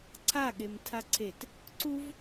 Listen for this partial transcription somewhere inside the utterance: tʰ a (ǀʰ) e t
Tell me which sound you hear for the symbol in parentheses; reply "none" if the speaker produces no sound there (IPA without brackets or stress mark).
ǀʰ